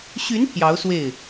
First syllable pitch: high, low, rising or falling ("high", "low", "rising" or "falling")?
rising